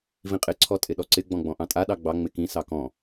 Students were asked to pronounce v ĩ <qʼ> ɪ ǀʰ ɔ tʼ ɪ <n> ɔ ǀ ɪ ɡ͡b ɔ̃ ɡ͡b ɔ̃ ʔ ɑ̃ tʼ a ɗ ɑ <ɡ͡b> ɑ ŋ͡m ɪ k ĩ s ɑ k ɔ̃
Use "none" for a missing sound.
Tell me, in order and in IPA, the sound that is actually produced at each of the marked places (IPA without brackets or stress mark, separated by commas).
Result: qʼ, ɗ, ɡ͡b